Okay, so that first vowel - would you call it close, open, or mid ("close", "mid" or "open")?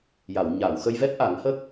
open